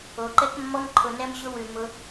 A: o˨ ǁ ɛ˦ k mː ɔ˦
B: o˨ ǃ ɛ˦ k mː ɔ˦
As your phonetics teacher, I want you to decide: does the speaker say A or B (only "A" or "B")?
B